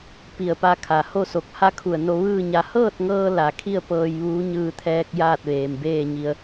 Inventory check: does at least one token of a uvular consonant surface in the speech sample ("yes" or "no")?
no